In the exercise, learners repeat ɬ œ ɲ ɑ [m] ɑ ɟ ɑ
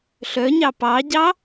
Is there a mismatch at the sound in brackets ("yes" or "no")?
yes